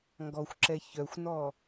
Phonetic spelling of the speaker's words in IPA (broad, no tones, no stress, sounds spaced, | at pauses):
ŋ ɡ ɔ xʷ ǁ ɛ ç œ xʷ n ɔ